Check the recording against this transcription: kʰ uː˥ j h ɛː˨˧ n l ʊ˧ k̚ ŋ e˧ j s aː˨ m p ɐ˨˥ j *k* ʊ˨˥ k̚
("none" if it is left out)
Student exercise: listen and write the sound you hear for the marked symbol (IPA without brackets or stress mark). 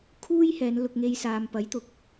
t̪